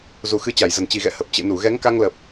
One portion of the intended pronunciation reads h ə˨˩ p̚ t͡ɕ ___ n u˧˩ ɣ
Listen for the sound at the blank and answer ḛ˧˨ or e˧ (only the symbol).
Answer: ḛ˧˨